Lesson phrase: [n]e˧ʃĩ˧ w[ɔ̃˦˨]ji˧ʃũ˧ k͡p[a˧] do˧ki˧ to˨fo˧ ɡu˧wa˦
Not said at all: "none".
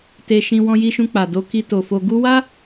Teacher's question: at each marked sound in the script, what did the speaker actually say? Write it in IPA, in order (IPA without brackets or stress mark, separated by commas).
t, ɔ̃˧, a˨